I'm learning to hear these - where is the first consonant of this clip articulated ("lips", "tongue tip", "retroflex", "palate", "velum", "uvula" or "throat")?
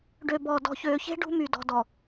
retroflex